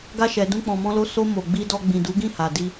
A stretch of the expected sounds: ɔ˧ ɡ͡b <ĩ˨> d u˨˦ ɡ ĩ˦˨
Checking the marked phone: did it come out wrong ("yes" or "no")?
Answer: no